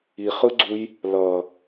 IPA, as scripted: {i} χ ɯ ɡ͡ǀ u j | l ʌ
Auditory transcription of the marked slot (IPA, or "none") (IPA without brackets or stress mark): i